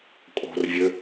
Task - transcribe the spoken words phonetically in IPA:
kʼ o̤ r vʲ ø

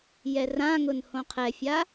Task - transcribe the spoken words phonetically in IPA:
j ɛ r ã ŋ ʊ n h õ qʰ ɛ fʲ a

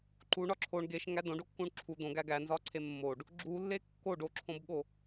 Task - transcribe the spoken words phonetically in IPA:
ǃ u ɳ ɒ ǁʰ o ɳ ɡ e ʃ ŋ æ d õ ɖ o kː ũ ɳ ǁʰ u d̪ õ ɡ æ ɡ æ n z ɒ ǀʰ e mː o ɖ | ɡ͡ǁ u lː e kː o ɖ o ǁʰ õ b ɠ o

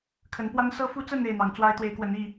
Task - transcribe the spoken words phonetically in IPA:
kʰ ə˨˦ n p w a˦ n s ɤ˦ f u˦ t͡s ə˥˨ n e˥˨ ɪ̯ n̪ ɑ˨˦ ŋ t͡s w a˦ ɪ̯ t̪ w e˨˦ ɪ̯ k w ə˨˦ n i˥˨

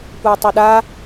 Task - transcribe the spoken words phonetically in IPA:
kʷ ɐː tˤ ə˞ ɗ a

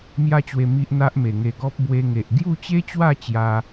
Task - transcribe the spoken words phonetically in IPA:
m j a˦ t͡ɕ w e˧ m i˦ ʔ n̪ a˦ ʔ m e˨˩ ŋ e˧ ɡ ɔ˦ p̚ b w e˧ ŋ e˨ ʔ ɡ j u˥˧ t͡ɕ e˦ t͡ɕ w a˥˧ t͡ɕ j a˦

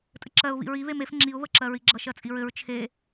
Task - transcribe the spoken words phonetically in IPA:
tʼ ɘ ǁ ɜ ʊ̯ β ḭ ɹ i β e m e f ŋ͡ǁ i ʊ̯ β ə ǁ ɜ ɹ i ɡ͡ǁ ʌ ʃ ɜ t͡sʼ i ɹ ɘ ɹ t͡ʃʰ e

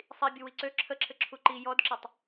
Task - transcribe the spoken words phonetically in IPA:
sˤ i bʲ u w i ǀ ø ǁʰ ə ǁʰ ɘ ǁʰ u ǃ i j ɔ d ǁ ə tˤ

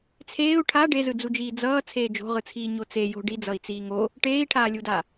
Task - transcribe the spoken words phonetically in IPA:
t͡sʰ eː u̯ ʈʰ a ɖ e z ɯ d͡z u d͡ʒ iː d͡z ʌː t͡sʰ eː d͡ʒ o̤ ʁ ɯ t͡sʰ iː ɲ o t͡s e j o̤ ɖ i d͡z ʌ i̯ t͡s iː ŋ o | ʈ eː i̯ ʈʰ aː lʲ u d a

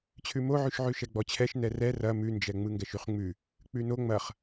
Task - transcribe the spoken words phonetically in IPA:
t͡ɕʰ ʉ m o ʕ ʉ ʃ ʕ ʉ ʃ ɛ ɡ͡b ɔ t͡ɕʰ ɛ ʃ n ɛ r ɛ r ɐ m ʉ n d͡ʒ ɛ ŋ͡m ɯ ŋ ɡ ɛ ʃ y χ ŋ͡m ʉ | k͡p ʉ n o ŋ͡m ɐ χ

